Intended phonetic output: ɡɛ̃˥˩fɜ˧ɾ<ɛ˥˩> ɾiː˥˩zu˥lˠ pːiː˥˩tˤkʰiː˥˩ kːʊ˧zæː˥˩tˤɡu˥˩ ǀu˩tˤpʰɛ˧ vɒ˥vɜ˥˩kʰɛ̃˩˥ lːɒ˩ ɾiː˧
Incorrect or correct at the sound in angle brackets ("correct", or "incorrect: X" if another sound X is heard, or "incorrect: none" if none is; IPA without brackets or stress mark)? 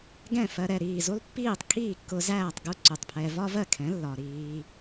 correct